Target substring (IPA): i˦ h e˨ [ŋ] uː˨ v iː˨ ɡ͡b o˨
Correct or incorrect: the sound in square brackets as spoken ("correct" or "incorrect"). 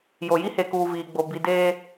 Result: incorrect